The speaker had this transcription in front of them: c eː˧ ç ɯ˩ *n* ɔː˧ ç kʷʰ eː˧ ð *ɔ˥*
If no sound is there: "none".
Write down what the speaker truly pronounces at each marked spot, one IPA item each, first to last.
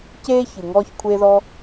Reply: ŋ, ɔ˧

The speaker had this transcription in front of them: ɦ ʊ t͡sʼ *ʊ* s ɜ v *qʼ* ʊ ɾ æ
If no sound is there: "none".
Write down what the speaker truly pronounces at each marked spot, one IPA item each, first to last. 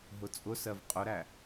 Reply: ʊ, qʼ

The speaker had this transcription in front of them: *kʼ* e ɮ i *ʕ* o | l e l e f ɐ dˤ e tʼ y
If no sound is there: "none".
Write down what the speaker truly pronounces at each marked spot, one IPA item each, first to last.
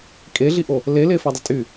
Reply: kʼ, ʔ

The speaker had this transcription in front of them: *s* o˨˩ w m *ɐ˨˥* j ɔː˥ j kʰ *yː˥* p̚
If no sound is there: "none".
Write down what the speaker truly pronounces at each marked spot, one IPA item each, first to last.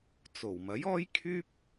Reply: t͡s, ɐ˨˥, yː˥

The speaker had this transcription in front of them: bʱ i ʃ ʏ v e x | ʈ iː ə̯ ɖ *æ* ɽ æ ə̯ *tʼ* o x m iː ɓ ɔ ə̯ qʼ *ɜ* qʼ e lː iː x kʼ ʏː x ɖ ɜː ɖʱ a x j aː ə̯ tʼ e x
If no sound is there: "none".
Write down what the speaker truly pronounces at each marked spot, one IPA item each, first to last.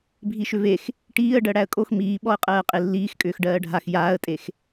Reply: ɜ, kʼ, ɜː

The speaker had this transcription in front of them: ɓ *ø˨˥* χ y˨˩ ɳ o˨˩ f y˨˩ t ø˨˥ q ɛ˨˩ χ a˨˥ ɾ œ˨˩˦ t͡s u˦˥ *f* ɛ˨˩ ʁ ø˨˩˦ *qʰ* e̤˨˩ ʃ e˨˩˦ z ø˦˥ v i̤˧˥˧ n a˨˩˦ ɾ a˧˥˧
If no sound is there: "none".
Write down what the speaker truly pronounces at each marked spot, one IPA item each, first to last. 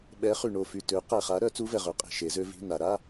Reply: ɛ˨˥, v, qʼ

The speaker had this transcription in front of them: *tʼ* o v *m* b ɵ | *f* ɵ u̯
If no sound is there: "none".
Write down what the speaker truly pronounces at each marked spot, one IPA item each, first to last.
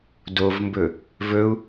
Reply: d, m, v

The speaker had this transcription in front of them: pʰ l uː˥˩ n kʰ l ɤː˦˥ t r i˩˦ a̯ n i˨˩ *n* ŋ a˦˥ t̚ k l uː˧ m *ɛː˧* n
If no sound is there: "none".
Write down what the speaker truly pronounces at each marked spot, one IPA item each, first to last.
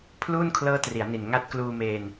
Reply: n, eː˧

